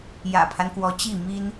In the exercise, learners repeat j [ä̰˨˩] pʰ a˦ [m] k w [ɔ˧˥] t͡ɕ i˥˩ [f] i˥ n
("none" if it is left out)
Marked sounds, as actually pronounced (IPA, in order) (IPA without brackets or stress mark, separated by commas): ä̰˨˩, n, ɔ˧˥, m